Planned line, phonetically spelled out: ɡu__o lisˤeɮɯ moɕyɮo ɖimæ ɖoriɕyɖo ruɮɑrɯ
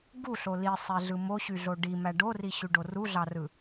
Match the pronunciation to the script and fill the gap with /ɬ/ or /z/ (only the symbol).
ɬ